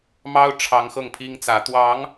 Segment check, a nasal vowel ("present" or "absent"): absent